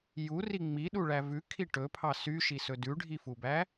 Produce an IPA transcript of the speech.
j u r i ŋ͡m i ɗ u ɭ æ v ʉ kʰ i ʈ ɵ pʰ ɑ s y ʃ i s ɵ d ʉ ɖʱ i f u b æ

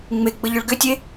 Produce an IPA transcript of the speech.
ŋ͡m e ɡ͡b ə ʎ ʏ ɭ ɡ ʏ tʲ e

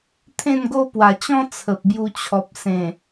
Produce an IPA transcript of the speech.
t̪ʰ ẽ˥˧ n ɡ o˦ p w a˨˩ t͡ɕ ɔ̃˦ t͡sʰ ə˨ p̚ b j u˧ t͡ɕʰ ɔ˨ p̚ s ẽ˨˩

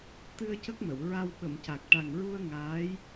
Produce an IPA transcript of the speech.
t̪ ɨ˧ ə̯ c ə˦˥ k̚ m ə˨˩˨ w ɹ a˧ w ɓ ə˨˩˨ m c a˨˩ k̚ ʈ a˨˩ ŋ ɹ u˧ ə̯ ŋ aː˧˥ j

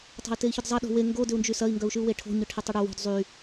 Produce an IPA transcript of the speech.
tˤ a̤ i̯ t e i̯ ç ʏ d zˤ ɐ ɗ o̤ w e ŋ ɡ o d ʏ u̯ n d͡ʒ y s ɐ i̯ ŋ ɡ œ u̯ ʃ y u̯ w e ʈʰ o̤ ɲ ʊ ʈʰ e tˤ ʏ ɽ œ w o̤ d zˤ y

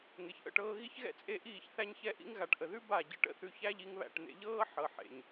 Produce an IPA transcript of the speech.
ŋ e˨ ç ʔ ə̰˧ ʈ ɤː˧ ɣ i˦ ç ɣ ɛ̰˦ t͡sʼ e˦˨ ʔ iː˦˨ ç θ æ˦ ɲ ç ɛ˦ ʔ ḭ˦ ŋ ɣ a˨ ʈ ʔ ə˨ ð ʉ˦ b a˦˨ ɟ ə˧ ʈ ə̰˦ θ ʉ˧ ç æ˦ ʎ i˧ ŋ β æ̰˦˨ ʈ n̪ ḛ˦ ʎ ɤː˦ ħ ɤ˨ ħ ḛ˨ ɲ

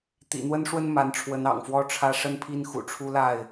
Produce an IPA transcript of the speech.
t̪ ḭ˨˩ n̪ w ə˦ n ʂ w ə˦ n m a˨˦ n ʈ͡ʂʰ w ə˨˦ n ɑ̰˨˩ ŋ f w ɔ˦ ʈ͡ʂʰ ä˦ ʂ ə˦ n pʰ i˦ n x ṵ˨˩ ʈ͡ʂʰ u˦ l a˥˨ ɪ̯

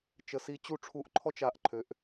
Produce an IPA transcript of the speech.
t͡ʃ ə˨˩ s i˨˥ t͡ɕ u˦˨ ʈ͡ʂʰ u˧˩˧ ʔ ǃʰ ɔ˥ t͡ʃ a˨˥ ʔ ǃʰ ø˩˧ ʔ

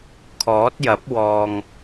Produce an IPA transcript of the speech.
kʰ ɔː˨˥ t̚ j ɐ˨˥ p̚ w ɔː˨ ŋ

